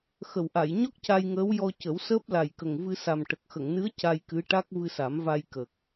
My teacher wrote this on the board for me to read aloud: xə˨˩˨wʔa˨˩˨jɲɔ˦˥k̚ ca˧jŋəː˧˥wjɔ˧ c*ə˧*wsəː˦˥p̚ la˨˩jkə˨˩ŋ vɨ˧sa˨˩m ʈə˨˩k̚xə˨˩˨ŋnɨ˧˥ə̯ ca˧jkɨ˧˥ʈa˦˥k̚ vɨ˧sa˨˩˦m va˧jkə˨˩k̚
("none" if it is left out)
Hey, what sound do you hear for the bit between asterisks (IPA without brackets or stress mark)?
ə˨˩˦